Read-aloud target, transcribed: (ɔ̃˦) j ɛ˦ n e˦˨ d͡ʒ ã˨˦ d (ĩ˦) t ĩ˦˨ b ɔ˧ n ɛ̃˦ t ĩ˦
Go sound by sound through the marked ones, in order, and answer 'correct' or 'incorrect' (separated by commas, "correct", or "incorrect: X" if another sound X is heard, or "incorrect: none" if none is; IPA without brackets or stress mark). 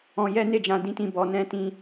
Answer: incorrect: ɔ̃˧, correct